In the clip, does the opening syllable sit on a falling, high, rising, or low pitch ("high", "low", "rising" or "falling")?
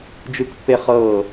high